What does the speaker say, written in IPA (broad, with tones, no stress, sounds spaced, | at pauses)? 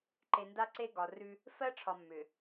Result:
ǃ e˨ n d a˦ ǀ e˦ ɡ ɒ˨ r ʉ˦ | f ɜ˦ ʈ͡ʂʰ ɒ˨ mː ʏ˨